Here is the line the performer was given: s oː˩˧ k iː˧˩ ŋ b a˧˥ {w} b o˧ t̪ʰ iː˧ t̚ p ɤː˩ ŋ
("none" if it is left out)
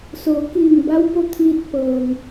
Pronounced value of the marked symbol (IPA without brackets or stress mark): w